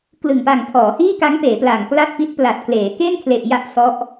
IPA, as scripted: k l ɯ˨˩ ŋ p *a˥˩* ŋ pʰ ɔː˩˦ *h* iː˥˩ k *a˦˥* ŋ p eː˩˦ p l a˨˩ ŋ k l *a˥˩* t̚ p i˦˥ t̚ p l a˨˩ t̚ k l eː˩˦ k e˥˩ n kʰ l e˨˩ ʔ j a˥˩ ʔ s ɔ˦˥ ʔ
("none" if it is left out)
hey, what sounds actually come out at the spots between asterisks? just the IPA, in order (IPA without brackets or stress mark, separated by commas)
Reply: a˨˩, h, a˦˥, a˥˩